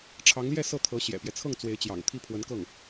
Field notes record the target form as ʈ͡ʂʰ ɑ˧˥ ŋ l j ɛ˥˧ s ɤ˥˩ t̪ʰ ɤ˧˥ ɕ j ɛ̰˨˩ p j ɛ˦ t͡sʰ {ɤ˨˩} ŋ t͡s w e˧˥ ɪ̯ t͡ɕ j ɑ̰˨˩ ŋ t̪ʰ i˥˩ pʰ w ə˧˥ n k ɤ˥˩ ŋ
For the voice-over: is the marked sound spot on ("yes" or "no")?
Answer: no